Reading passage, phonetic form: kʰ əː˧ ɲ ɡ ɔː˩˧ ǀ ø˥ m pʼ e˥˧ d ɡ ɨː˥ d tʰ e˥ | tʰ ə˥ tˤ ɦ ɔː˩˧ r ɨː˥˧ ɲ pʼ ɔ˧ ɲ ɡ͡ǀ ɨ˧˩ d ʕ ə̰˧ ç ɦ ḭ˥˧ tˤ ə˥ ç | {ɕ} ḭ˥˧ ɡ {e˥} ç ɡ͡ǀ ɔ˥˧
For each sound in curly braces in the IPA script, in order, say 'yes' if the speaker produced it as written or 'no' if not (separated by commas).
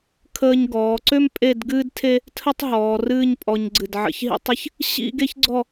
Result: yes, yes